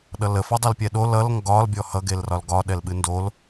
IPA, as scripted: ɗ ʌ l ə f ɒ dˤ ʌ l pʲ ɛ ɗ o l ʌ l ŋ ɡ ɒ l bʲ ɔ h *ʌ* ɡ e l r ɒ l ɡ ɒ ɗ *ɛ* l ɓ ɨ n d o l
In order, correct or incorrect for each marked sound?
correct, correct

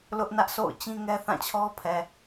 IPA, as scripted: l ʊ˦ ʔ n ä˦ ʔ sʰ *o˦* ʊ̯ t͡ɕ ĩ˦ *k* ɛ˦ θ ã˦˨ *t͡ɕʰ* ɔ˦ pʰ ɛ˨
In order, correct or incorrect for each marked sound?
incorrect: o̰˦˨, incorrect: ŋ, correct

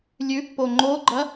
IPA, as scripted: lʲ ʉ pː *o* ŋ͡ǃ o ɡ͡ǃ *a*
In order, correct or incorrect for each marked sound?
correct, incorrect: ɐ

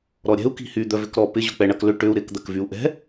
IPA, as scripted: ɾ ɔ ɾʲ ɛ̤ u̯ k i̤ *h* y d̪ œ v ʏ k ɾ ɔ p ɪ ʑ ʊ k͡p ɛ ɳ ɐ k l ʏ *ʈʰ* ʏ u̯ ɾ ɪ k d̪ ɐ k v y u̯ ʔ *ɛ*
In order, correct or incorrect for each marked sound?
correct, incorrect: ʈ, incorrect: ɛ̤

